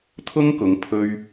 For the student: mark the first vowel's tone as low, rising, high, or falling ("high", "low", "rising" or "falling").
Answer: high